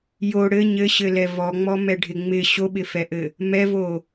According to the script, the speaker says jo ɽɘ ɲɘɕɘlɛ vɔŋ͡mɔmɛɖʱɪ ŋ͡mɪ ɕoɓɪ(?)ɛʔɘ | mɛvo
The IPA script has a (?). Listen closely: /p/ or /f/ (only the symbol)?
f